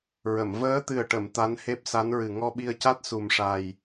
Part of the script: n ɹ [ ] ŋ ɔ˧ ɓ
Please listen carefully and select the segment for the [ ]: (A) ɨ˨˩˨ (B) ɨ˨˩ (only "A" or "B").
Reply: B